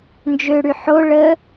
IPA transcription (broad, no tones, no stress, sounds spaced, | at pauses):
n d͡ʒ ø ɽ y ħ o ɭ ə